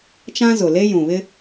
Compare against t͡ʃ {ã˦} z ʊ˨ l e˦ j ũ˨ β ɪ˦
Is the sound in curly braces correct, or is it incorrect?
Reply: correct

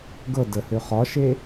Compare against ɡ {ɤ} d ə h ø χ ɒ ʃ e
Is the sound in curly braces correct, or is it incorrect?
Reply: correct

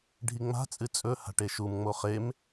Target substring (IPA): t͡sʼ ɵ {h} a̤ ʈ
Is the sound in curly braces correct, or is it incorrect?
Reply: correct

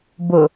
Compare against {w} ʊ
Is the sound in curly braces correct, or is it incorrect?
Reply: incorrect: b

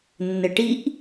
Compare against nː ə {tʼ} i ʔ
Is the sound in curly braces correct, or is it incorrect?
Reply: incorrect: ʈ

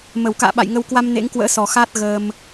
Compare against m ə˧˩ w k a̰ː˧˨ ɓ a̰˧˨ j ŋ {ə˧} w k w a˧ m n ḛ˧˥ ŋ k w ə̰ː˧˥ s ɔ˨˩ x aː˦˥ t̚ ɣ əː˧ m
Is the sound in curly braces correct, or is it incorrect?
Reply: correct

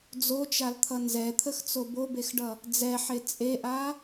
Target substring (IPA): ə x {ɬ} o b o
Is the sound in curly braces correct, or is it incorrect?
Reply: incorrect: t͡s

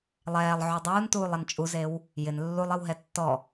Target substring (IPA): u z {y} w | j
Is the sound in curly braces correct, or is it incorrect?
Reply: incorrect: e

